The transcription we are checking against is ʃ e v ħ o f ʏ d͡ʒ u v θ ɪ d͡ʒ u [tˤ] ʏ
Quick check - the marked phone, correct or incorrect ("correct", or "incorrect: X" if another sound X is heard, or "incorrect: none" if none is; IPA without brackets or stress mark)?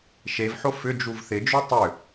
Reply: correct